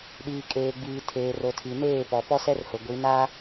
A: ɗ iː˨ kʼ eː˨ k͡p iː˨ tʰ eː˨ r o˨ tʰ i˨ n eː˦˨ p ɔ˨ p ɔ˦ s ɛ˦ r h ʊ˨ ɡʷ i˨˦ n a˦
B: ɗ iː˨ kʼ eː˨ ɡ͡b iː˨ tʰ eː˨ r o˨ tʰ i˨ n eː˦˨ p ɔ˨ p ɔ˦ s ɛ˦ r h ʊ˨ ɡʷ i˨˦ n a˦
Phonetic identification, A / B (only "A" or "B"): B